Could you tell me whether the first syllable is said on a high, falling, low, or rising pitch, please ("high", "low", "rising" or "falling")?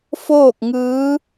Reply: falling